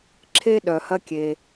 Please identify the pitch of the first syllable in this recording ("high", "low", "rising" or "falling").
high